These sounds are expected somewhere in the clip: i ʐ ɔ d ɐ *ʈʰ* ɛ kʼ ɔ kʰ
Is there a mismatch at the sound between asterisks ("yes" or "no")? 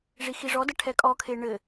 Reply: no